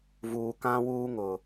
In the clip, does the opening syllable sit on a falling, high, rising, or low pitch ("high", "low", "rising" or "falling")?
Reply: low